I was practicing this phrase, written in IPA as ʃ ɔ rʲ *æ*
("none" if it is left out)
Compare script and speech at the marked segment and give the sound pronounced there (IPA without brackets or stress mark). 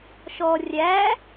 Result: æ